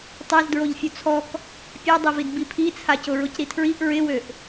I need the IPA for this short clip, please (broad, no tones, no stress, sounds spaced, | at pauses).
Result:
tˤ ɛ z d ɹ o ʎ fʲ u t͡sʰ ɔ k | pʲ a dˤ e v i d b i pʰ i t͡sʰ a c ʊ ɹ ʊ c ɾ i tʰ ɹ i ʔ ɹ ɪ w ø ʔ